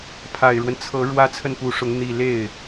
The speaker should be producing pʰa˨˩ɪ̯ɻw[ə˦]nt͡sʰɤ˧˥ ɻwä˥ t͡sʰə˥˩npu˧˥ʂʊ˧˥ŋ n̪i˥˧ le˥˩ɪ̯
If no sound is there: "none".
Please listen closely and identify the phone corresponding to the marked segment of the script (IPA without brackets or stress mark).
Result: ə˦